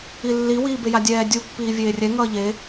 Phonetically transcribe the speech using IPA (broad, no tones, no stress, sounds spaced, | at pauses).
i lː i w iː b e j a dʲ ɛː dʲ u pː iː vʲ eː rʲ ɛ ŋ ʌː ʎ e